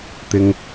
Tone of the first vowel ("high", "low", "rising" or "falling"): high